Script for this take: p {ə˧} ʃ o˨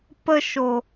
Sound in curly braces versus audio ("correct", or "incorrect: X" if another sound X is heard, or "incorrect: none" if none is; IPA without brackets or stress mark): correct